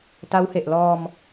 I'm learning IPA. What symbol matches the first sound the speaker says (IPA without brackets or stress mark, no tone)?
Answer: t